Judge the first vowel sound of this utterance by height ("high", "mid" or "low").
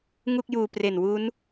high